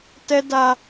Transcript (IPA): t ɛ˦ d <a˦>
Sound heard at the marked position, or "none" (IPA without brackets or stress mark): a˦